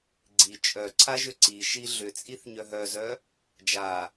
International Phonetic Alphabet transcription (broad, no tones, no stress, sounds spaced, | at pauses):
ɡ͡ǀ i t͡ʃʼ œ ǀʰ a ʒ ʏ ǀ i ʃ i ɮ ʏ t͡sʼ i θ ɲ œ ɦ œ z œ | d͡ʒ a